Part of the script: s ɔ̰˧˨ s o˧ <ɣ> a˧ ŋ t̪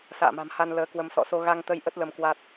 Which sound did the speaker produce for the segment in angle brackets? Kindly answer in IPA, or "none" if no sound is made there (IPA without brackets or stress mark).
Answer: ɣ